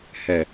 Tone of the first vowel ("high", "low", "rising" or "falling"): low